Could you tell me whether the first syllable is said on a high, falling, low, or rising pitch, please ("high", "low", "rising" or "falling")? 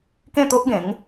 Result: falling